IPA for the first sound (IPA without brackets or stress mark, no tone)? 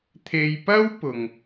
t̪ʰ